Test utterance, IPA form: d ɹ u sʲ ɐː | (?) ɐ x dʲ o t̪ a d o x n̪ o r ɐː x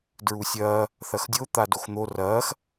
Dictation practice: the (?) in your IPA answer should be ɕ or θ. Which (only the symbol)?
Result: θ